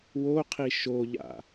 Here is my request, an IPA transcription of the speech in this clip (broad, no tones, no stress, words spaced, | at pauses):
woqʰi ʃoʎa̰